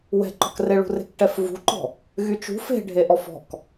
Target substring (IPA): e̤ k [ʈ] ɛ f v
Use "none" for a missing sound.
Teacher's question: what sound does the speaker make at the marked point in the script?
ʈ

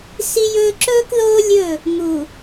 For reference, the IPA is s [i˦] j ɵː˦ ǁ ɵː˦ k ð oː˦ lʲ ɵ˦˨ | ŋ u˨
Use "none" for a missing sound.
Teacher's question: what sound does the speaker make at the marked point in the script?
i˦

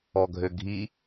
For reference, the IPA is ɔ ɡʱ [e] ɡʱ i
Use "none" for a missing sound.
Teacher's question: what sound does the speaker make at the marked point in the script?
ø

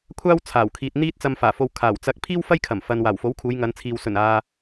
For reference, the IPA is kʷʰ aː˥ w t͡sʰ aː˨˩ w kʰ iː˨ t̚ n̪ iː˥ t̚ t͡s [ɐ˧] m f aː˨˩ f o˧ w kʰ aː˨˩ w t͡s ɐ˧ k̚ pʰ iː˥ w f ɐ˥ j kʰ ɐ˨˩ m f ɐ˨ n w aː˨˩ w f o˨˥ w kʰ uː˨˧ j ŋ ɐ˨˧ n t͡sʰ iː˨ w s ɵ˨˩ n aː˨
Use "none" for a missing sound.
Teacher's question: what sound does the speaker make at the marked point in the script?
ɐ˧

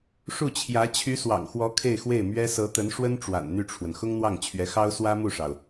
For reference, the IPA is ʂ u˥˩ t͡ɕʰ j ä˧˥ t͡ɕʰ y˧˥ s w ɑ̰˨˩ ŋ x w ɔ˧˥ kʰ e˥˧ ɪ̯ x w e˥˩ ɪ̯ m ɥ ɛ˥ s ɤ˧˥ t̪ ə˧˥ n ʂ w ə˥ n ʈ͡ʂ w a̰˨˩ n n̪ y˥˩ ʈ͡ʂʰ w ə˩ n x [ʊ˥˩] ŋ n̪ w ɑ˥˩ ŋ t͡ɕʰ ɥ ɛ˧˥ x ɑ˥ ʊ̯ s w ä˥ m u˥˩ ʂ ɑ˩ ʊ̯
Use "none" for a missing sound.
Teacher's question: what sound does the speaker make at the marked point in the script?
ʊ˥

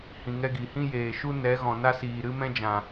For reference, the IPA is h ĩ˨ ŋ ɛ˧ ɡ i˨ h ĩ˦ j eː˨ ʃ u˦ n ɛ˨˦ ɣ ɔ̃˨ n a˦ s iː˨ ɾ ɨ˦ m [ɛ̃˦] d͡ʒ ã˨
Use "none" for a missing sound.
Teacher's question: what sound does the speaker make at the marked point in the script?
ɛ̃˦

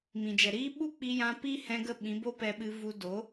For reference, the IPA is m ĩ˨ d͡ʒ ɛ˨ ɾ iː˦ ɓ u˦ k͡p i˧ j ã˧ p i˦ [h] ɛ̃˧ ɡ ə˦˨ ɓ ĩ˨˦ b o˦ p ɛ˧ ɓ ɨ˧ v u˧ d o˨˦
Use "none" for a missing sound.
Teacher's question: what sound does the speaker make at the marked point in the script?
h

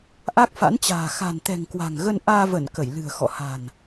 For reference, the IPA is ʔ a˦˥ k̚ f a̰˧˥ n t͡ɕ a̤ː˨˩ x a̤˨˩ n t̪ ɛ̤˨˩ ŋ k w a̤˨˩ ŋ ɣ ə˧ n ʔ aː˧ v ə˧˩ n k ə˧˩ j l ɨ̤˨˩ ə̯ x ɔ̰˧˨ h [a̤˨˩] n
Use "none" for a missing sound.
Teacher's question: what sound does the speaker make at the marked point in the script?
a̤˨˩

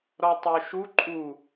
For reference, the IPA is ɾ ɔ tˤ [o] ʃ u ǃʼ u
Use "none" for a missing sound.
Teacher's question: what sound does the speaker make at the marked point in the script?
o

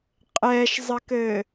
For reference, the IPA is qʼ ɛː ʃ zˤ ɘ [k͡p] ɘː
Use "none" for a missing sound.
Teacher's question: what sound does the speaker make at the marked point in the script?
k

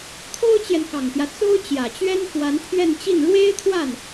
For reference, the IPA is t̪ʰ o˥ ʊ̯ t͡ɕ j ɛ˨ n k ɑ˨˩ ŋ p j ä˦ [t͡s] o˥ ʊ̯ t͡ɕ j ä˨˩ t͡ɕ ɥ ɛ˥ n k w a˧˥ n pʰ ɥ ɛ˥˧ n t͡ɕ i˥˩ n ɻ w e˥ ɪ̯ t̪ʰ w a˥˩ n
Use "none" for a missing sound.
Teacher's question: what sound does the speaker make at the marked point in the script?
t͡s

